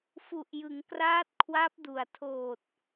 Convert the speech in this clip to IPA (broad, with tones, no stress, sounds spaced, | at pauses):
f u˨˩ ʔ j ɯ˩˦ ŋ k r aː˦˥ t̚ kʰ w a˦˥ p̚ d u˨˩ a̯ tʰ oː˨˩ t̚